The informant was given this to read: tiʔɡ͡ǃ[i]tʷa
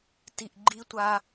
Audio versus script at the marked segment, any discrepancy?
no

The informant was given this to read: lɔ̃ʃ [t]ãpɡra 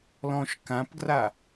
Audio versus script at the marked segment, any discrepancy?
yes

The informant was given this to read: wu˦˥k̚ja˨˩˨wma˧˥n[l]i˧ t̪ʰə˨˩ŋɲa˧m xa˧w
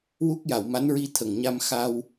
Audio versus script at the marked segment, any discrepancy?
yes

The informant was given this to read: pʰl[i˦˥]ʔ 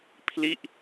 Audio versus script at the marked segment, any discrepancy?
yes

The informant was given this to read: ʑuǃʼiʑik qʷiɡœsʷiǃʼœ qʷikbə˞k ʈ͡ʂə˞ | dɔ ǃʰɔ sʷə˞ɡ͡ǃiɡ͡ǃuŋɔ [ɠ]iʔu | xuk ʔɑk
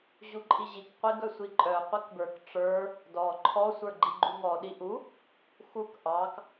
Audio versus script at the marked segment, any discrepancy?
yes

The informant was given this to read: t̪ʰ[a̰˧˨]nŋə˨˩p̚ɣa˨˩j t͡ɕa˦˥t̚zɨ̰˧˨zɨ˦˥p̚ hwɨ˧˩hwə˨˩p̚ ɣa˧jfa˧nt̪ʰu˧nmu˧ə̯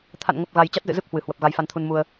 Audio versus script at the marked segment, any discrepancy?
no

